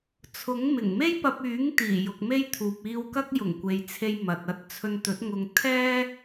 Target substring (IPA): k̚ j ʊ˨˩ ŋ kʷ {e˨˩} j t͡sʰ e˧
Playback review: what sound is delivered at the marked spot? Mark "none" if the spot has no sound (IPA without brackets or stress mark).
e˨